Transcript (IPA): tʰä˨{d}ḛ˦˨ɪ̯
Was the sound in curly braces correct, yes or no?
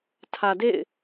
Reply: yes